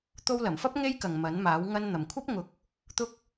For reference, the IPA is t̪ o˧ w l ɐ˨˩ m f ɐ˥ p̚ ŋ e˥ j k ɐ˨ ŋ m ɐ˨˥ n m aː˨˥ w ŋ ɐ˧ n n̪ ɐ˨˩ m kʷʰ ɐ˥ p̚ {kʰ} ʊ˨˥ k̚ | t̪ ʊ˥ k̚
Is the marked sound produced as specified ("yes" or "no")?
no